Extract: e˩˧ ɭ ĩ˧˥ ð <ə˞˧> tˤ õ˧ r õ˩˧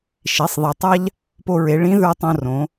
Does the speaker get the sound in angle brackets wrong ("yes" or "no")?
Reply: no